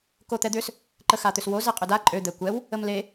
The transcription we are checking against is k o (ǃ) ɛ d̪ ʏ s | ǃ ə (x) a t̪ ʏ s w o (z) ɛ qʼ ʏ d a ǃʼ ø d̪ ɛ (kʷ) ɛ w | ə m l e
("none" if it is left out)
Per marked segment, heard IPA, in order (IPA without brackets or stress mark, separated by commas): t̪, x, z, kʷ